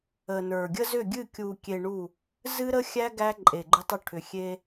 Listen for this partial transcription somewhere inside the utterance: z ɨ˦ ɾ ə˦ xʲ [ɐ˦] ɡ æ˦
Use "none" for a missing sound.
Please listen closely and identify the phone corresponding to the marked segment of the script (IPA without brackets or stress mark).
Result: æ˦